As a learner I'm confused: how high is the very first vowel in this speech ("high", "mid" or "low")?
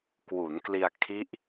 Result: high